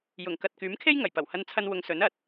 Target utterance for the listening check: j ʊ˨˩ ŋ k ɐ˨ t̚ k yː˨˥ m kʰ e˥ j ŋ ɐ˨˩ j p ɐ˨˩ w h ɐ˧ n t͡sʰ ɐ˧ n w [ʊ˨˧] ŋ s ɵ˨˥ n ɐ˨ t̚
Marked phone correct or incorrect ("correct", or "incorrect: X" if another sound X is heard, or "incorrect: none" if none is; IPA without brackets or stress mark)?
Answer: correct